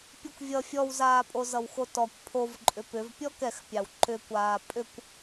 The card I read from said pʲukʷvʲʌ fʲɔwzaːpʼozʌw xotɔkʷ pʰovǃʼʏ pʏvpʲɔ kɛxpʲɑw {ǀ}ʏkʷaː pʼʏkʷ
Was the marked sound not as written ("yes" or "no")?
yes